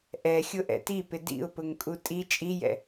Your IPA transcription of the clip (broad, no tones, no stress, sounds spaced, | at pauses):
ʔ ɛ xʲ ʊ ʔ ɛ̰ t i p ɪ d ḭ ʊ̯ p ʊ ŋ kʼ u tʼ i t͡ʃʼ i j ɛ̰